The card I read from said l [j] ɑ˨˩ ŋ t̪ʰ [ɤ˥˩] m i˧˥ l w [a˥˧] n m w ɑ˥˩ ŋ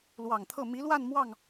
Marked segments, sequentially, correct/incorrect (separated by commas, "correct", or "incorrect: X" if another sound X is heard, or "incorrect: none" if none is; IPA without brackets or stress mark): incorrect: w, correct, correct